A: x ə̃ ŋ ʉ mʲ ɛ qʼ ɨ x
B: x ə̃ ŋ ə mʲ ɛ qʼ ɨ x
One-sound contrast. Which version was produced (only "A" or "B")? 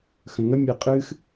B